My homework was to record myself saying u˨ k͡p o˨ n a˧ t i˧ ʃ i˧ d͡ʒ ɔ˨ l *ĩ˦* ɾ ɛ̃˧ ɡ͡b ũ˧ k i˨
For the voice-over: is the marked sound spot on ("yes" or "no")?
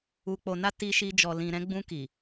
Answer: no